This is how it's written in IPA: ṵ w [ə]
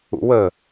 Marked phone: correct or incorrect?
correct